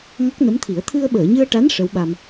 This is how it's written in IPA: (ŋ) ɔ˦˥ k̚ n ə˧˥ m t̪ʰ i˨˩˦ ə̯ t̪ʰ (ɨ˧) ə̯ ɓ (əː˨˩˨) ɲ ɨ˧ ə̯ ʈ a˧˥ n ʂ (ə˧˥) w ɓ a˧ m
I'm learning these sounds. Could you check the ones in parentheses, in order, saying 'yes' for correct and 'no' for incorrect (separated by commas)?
yes, yes, yes, yes